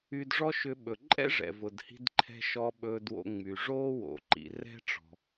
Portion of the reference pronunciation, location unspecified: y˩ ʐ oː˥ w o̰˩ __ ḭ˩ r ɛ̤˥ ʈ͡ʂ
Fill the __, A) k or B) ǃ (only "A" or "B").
B